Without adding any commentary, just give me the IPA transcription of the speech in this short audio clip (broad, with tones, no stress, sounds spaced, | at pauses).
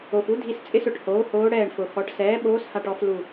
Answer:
o˩ f u˧˥ dʱ i˧˩ s t͡sʼ ɪ˥˧ s ʊ˩ ʈ h oː˩˥ h oː˧˥ ɽ ɛː˧˩ ɳ f ʊ˩ x ɔ˩˥ ʈ s ɛː˩˥ ɓ oː˧˥ s h a˧˩ ʈ ɔ˥˧ f l u˧˩